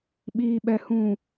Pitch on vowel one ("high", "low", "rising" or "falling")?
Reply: low